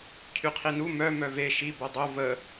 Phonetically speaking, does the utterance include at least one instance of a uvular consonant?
yes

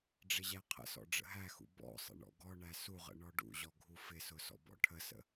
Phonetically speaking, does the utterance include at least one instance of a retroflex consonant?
yes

